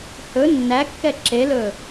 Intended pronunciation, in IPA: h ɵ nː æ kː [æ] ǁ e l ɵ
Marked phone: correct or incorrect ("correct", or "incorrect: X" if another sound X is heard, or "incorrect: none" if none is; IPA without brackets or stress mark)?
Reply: incorrect: ɛ